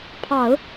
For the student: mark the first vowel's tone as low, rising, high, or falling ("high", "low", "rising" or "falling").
low